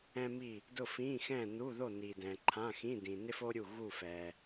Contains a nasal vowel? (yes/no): yes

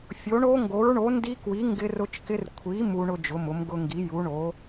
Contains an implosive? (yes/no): no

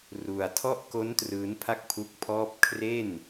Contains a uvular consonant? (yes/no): no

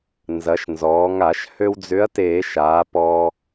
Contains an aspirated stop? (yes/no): no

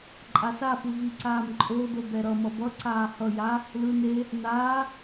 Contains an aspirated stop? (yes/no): no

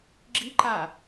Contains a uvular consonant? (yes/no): no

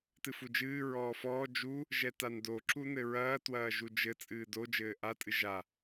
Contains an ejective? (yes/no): yes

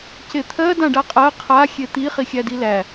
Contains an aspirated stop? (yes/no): yes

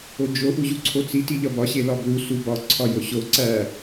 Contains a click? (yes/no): yes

